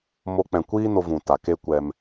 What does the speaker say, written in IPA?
m o˦ k͡p ɛ̃˧ kʷ iː˦ n o˧ v ũ˨ t a˨ k e˦ kʷ ɛ˧ m

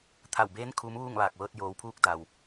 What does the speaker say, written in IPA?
t̪ʰ a˧˩ w b eː˧˥ n kʰ uː˧˥ m ʋ uː˥˨ ŋ ʋ aː˧˩ k̚ ʋ ɤː˧ t̚ j oː˩˧ w pʰ uː˧˥ k̚ d a˩ w

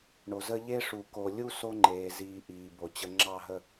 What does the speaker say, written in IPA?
ɳ o˨ z ə˦ ʎ e˦ ʂ u˨ k o˨ lʲ u˦ s o˦ ŋ͡ǃ eː˨ z iː˨ ʔ iː˨ b o˨ t͡ɕ ə˨ ŋ͡ǁ ɑ˦˨ ɦ ə˦˨

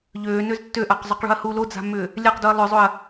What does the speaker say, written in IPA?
ʎ øː n ø z tː ø ʔ a q zˤ o q ɭ ṳ ɐ̯ h u l o d͡z a̤ mː ʏː | lʲ a q d u ɐ̯ lˠ ʏ zˤ o ɐ̯

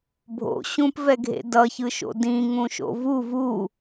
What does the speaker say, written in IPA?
bʱ o̰ ɕ ũ p v ɛ ɡʱ ḛ d ʌ ç ɯ ʃ o̰ d ĩ ŋ ũ ʃ o̰ v u v u

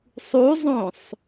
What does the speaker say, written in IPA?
sˤ u zˤ õ sˤ

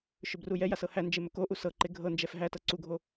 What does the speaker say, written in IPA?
ʃ ɵ b r u j ɛ j a s ɤ h æ n d͡ʒ e m ɵ k o ʔ u s ɤ ǃ e ɡʱ ɤ n d͡ʒ ɛ f ɦ æ t ɤ ǀ u ɡʱ o

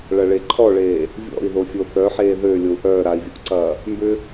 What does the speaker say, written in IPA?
ɭ ɐ ɭ e ǃʰ ɔ ɭ eː | vʲ ɔ̰ i̯ ð o fʲ o θ œ ħ eː ð ø lʲ o u̯ ʔ œː ɾ a i̯ vʲ ɔ̰ ʔ ǀ ɐː | m b ʏ

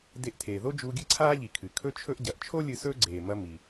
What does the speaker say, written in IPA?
d e˧ ʔ tʰ eː˩ ð o˥ d͡ʒ uː˧ ɡʲ ɨ˥ ǀʰ aː˥ ʎ i˩ kʰ ɨ˩ kʰ ɵ˥ t͡ʃʰ ɵ˥ ʔ ɟ ɐ˩ ʔ t͡ʃʰ o˥ lʲ ɨ˧ s ɵː˥ ɡ͡ǀ eː˩ m ɐ˧ m i˩

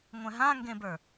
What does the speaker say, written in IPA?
ŋʷ ɛ̃ ɦ ã ŋ ɡ ẽ b ə˞

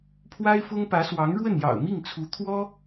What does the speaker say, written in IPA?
pʰ w a˥ ɪ̯ f ʊ˥ ŋ p ä˧˥ s w ɑ˧˥ ŋ ɻ w ə˥˩ n j ɑ̰˨˩ ʊ̯ m i˥˩ ŋ t͡sʰ u˧˥ t̪ʰ w ɔ˥

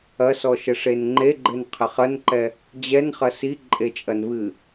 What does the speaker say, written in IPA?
ɐ s ɔ ʃ ɘ ʂ e n ŋ͡ǃ e ɡ͡ǃ ɘ n qʰ ɘ χ ɐ n ǃ ɛ | d͡ʑ ɛ n χ ɐ s i ǃʼ e t͡ʃʼ ɐ n β ɨ

